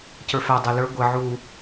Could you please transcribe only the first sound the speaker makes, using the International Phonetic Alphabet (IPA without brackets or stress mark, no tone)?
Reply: c